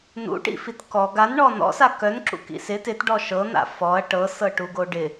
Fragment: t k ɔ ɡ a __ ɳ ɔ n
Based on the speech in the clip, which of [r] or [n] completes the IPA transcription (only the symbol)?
n